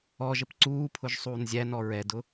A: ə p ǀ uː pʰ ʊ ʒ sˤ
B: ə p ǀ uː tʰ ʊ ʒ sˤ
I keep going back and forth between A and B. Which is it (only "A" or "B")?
A